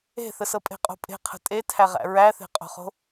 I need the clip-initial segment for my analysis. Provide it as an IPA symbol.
e̤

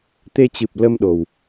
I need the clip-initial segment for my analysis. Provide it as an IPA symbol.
t̪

